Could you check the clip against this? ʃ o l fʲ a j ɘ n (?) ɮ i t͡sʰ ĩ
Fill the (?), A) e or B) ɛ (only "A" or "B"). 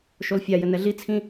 B